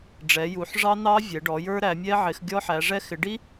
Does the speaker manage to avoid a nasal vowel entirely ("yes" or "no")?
yes